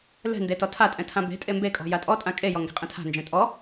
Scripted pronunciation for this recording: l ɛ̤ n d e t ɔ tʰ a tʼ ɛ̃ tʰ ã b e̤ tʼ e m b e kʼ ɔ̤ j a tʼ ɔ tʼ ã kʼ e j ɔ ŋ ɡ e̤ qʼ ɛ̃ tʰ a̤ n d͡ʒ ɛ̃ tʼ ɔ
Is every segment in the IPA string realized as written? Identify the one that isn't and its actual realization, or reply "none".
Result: none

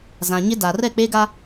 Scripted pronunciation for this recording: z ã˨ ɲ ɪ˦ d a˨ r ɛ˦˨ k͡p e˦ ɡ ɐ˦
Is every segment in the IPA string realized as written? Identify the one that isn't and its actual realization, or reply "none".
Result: ɐ˦ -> a˦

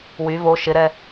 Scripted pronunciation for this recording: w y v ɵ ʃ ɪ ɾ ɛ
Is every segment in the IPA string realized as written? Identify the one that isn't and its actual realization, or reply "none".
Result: ɵ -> o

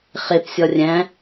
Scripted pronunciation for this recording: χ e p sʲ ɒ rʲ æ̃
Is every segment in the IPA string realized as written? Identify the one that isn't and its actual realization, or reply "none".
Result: none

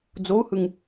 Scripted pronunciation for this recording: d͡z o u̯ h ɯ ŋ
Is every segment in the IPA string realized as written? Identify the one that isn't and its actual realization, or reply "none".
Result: none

